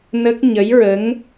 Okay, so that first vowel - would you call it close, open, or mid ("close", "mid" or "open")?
mid